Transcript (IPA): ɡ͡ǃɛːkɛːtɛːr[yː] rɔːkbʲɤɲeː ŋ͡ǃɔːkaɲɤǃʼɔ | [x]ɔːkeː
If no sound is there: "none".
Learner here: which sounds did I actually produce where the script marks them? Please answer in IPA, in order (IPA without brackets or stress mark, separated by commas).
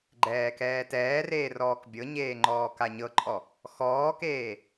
eː, x